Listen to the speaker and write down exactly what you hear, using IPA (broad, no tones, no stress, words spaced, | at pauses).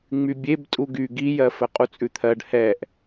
ŋ͡mybʲeb tʼuɡy ɡijɜfə qʼut͡sʼʉt̪ʰɜɖ hɛʔ